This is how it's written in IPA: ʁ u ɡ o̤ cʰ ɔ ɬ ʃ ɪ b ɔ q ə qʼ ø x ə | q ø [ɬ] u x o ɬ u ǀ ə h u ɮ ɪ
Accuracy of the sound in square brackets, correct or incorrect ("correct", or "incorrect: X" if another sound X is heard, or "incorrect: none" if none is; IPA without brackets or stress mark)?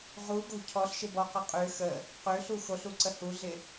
correct